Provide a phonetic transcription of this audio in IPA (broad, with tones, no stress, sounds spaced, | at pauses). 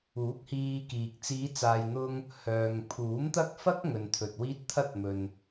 uː˨˥ k̚ h iː˧ k iː˨ k̚ t͡s iː˨˧ t͡s aː˨ j n̪ ʊ˧ ŋ | h œː˨ ŋ pʰ uː˨˥ m t̪ ɐ˥ k̚ f ɐ˥ k̚ ŋ ɵ˨ n t̪ʰ ɵ˨ t̚ w iː˥ t̚ t̪ʰ ɐ˥ t̚ m ɵ˨ n